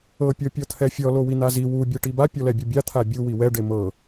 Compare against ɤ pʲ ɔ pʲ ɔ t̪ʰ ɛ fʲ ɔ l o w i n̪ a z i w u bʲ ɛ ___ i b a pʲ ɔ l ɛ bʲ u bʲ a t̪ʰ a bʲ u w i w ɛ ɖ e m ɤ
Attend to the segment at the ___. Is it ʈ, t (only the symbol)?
ʈ